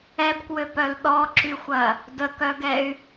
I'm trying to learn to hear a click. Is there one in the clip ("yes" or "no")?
yes